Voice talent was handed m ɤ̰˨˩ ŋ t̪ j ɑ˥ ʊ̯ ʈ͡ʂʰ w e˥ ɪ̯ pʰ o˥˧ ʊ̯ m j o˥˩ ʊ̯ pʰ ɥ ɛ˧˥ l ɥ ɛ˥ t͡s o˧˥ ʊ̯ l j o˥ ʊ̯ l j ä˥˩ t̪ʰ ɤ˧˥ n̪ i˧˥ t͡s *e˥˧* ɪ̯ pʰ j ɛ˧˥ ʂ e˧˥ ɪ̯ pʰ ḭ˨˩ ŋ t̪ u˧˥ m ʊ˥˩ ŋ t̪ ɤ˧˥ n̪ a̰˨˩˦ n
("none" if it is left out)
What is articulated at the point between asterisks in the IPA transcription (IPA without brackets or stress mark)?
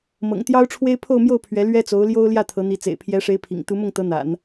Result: ḛ˨˩